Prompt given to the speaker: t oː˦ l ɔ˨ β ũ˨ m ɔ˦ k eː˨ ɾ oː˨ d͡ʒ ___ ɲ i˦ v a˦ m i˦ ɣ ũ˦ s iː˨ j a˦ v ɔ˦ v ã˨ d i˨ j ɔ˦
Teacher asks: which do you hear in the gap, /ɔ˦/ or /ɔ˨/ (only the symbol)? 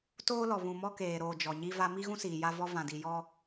ɔ˨